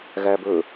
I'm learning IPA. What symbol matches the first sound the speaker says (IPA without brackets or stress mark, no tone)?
ɣ